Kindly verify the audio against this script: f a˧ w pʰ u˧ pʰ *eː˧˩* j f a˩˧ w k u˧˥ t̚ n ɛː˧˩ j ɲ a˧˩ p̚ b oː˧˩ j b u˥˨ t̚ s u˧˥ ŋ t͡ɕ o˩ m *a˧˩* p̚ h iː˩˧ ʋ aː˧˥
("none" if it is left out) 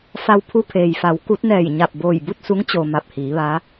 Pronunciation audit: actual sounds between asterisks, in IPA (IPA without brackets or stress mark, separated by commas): eː˩, a˧˩